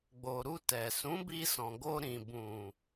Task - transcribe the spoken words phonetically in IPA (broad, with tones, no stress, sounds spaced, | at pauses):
ɡ͡b o˨ ɾ u˧ t ɛ˨ s ũ˨˦ b i˧ s ɔ̃˨ ɡ o˧ ɾ ĩ˨ b ũ˨